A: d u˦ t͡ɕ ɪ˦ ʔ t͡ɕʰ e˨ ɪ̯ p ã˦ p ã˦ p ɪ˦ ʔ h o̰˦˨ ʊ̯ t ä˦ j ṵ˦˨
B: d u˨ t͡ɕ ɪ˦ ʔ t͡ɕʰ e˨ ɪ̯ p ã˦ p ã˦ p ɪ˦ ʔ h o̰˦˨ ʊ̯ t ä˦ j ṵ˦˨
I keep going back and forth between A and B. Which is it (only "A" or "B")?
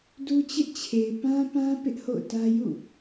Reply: A